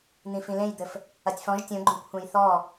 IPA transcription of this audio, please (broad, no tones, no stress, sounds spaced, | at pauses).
n̪ ĩ f ĩ l ẽ j d̪ ɘ f | ɐ tʲ f ɔ̃ ʒ tʲ õ ɡ͡ǃ õ kʷʰ ẽ j θ ɔ